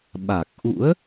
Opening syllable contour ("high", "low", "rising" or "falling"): low